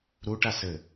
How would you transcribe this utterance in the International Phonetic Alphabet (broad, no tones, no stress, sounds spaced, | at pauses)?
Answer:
ɾ u ʈ a s ɘ